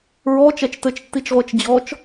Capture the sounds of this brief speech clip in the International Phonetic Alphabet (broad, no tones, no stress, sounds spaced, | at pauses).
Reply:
ɹ ɔ t͡ʃ ɛ t͡ʃ t ɘ t͡ʃ tː i t͡ʃ ʁʷ e t͡ʃ d͡ʑ ɔ t͡ʃ